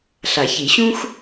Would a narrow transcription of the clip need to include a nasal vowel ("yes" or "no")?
yes